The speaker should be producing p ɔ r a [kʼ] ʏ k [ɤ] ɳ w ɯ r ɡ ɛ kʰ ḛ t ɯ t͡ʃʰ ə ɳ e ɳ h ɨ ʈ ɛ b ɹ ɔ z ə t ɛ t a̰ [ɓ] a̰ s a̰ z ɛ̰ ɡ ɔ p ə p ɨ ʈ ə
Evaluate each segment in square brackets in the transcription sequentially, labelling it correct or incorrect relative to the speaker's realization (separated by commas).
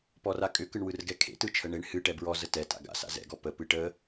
correct, incorrect, incorrect